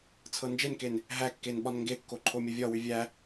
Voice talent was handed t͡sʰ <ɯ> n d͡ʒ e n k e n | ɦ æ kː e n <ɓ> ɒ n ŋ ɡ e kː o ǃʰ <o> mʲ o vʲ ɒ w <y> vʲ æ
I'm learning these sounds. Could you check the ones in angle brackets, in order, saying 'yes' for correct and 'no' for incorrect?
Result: no, yes, yes, yes

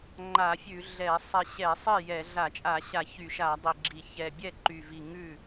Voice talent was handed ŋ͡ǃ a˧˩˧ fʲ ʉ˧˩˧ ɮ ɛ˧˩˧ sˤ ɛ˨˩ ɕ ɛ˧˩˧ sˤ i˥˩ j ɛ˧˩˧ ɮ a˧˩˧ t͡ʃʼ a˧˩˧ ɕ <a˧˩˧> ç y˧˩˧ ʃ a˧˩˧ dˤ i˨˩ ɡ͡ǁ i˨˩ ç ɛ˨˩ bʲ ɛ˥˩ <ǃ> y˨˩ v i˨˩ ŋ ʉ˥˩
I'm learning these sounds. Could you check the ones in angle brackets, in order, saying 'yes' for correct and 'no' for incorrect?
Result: yes, yes

